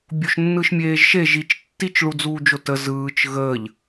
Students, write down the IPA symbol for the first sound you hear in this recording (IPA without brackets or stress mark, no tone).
bʲ